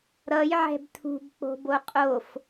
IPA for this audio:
ɾ ʌ j ʕ ɛ̤ b tʰ ṳ b k͡p o̤ b o qʼ o f

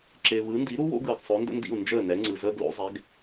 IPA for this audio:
ǁ ɪː˩ β ɯ˩˥ n d i˩˥ ɾ u˥ w o̰˥ ɡ ɯː˩ ɡ sˤ o˩˥ n d ə̰˥ n d ḭ˥˩ u̯ n d͡ʒ əː˥˩ n ɛ˩˥ ŋ͡ǀ ɯ˩ z əː˥ ɡ l o̰˩˥ zˤ ɛ˩˥ ɡ

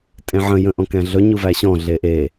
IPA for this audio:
tʼ ẽ ʕ ə̃ j ə̃ ʔ ɔ̃ k æ̃ ɮ ɵ ɲ u v æ ɕ ɔ̃ ɮ e ʔ e

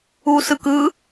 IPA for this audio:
u s ɯ k ɯ

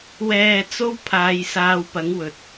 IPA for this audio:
w ɛː˧ t͡s o˥ w pʰ aː˨˧ j s aː˨˧ w p ɐ˨˥ ŋ w ɵ˨ t̚

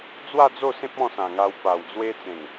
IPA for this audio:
d͡z w a˥˧ d͡z o˥˧ s ẽ˦ p̚ ɔ̃˥˧ s ã˨˩ ŋ a˧ w p a˨˩ w d͡z w e˦ t͡s ẽ˨˩ ŋ

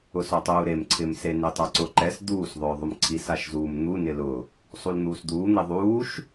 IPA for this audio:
ʊ s ɔ tˤ uː ɾ e m ǀʰ ɪ m s e n e tˤ a ǀ ʊ ǃ ɛ s d̪ uː s ðˤ ʊː ðˤ ʊ m ǀʰ i s a ʃ z uː m n̪ u n ɪ l ʊ | sˤ u l n̪ uː s d̪ uː n̪ e ðˤ uː ʃ

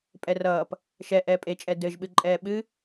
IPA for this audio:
pʼ ɛ r ʌː p | ʃ ɛ ʔ ɛː pʼ e t͡ʃʼ ɛ d ɘ ʒ ɓ ɨ ǃʼ ɛː ɓ ɨ

